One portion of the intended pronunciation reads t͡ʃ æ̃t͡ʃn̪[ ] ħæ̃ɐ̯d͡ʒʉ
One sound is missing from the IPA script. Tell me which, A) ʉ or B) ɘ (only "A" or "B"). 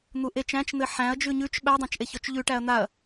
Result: B